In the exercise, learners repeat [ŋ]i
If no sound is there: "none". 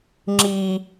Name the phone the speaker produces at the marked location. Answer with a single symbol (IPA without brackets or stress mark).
ŋ͡ǁ